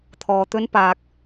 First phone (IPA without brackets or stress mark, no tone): t̪ʰ